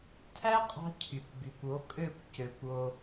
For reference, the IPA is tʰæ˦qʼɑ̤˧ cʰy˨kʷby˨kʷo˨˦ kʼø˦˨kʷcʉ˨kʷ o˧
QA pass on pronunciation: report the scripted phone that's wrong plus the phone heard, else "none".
ʉ˨ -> ø˨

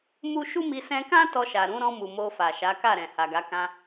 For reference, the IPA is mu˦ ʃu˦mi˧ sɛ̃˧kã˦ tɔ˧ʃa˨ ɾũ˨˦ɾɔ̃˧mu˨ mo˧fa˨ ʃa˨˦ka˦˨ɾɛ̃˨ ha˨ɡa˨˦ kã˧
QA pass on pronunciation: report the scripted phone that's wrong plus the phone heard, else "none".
none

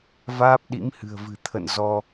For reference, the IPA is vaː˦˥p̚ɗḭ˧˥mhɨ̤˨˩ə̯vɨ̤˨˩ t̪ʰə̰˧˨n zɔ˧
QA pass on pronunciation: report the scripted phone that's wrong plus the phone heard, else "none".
none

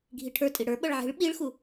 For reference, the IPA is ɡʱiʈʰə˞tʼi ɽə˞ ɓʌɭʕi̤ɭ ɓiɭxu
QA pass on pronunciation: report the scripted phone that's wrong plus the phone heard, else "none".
none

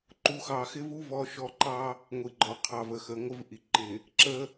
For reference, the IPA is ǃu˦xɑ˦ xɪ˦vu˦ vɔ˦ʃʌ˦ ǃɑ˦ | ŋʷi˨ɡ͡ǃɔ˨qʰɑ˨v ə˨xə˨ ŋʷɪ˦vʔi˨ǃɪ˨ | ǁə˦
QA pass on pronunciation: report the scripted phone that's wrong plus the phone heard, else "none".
ʌ˦ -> ɔ˦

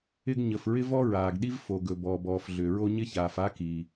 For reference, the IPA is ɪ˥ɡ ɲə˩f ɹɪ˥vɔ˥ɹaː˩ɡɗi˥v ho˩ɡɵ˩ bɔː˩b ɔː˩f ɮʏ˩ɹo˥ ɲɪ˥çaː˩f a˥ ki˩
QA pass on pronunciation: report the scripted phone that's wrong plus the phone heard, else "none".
h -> f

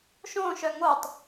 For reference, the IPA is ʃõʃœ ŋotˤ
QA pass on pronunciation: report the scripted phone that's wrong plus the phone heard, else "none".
none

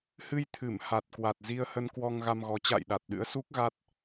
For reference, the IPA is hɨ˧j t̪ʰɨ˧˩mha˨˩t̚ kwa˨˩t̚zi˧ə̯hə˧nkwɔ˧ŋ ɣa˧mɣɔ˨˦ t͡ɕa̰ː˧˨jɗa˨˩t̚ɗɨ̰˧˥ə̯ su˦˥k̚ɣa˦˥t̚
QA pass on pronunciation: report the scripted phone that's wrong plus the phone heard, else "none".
none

